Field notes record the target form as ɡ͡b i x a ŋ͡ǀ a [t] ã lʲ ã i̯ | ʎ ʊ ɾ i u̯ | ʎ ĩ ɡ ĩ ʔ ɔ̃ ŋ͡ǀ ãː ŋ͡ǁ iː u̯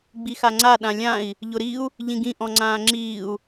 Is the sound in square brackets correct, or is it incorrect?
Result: incorrect: ɗ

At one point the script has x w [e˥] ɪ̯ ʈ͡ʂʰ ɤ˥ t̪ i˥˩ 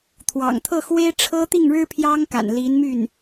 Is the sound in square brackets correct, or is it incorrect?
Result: correct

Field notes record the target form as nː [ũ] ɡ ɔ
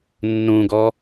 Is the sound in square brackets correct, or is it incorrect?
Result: correct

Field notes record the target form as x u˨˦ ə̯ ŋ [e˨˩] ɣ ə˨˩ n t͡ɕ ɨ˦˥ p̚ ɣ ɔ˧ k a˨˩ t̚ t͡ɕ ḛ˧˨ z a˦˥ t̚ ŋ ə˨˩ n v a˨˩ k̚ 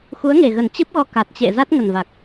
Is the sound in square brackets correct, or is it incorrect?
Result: correct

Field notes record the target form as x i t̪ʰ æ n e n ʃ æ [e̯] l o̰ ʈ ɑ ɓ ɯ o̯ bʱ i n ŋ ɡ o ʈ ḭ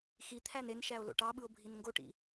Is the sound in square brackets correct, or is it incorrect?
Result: incorrect: o̯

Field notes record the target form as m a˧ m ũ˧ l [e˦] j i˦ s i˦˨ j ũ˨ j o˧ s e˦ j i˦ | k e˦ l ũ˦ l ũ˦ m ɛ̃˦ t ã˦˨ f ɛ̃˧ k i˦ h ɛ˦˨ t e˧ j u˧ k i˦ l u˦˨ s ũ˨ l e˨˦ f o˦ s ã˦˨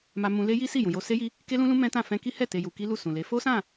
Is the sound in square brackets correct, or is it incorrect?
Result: correct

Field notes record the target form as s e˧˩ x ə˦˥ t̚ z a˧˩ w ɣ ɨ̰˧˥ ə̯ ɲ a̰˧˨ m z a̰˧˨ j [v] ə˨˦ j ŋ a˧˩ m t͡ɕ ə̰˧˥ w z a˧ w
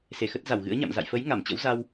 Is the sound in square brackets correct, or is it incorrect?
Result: incorrect: f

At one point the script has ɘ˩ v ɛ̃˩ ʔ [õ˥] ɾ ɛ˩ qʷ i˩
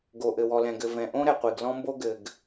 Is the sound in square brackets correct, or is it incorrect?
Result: correct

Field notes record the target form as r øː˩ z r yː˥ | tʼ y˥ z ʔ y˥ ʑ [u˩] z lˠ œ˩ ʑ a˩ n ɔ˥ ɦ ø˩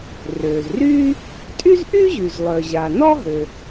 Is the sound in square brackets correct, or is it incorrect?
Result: incorrect: y˩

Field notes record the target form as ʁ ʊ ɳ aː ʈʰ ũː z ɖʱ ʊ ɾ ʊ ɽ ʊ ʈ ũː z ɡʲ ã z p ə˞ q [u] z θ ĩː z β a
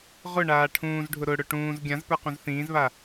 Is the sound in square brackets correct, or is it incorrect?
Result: incorrect: ũ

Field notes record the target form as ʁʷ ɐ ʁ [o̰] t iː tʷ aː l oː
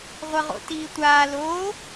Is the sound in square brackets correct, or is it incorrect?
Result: correct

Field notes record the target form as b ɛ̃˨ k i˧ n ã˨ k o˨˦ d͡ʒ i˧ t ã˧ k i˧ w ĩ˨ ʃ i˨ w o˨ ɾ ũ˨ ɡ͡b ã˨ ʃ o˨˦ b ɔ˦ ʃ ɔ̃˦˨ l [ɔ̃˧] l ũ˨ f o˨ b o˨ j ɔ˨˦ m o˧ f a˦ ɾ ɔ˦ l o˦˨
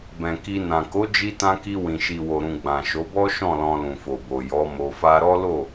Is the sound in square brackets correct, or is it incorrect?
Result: correct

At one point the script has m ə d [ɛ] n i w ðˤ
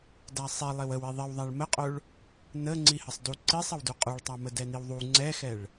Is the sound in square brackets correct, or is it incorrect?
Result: correct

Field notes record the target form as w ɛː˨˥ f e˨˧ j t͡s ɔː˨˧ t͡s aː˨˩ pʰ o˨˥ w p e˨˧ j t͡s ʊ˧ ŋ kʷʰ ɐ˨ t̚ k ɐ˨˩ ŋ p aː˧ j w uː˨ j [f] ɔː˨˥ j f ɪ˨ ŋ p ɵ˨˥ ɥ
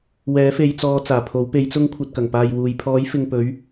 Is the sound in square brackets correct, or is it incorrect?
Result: incorrect: pʰ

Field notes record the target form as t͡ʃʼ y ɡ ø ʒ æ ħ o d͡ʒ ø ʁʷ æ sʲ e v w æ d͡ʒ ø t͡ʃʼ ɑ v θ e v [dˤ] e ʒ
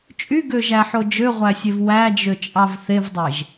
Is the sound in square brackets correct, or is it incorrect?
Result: correct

